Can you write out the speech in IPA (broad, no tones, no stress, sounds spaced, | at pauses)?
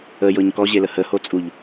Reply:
ə j ɤ ɲ k ɔ ʑ e l ə h ə h o t͡sʼ u ʎ